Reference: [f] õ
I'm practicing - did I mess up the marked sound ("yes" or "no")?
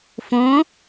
no